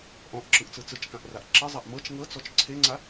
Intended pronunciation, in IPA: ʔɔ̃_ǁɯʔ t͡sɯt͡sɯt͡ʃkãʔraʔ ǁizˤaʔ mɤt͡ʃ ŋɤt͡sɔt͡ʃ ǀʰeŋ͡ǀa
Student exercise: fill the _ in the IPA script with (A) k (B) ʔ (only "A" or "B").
B